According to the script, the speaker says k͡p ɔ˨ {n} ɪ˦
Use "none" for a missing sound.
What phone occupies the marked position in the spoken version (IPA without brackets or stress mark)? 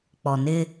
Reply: n